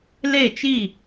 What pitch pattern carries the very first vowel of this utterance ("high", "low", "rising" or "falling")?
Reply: falling